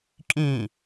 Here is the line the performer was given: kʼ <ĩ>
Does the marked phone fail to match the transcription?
no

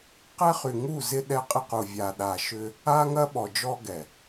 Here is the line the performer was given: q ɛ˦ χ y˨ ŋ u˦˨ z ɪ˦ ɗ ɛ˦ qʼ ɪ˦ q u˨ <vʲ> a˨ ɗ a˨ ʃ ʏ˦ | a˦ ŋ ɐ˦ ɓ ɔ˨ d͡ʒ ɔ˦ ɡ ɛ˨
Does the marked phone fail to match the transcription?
no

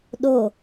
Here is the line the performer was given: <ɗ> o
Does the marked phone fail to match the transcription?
no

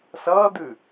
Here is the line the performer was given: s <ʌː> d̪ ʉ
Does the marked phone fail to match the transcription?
no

